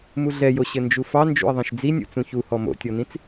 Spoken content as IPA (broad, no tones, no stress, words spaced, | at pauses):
muɮɛjo ɕɘnd͡ʒufɑ nd͡ʒṵə̯ðˤĩʃd͡zinʲṵ t͡sũçuhɔ mo̰tʲɔnĩt͡s